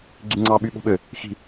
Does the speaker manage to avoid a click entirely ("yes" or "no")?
no